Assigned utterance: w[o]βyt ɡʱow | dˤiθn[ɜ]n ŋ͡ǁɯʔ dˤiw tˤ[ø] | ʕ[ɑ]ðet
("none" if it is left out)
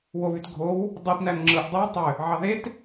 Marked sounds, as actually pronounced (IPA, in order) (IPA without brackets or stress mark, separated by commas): o, æ, ø, ɑ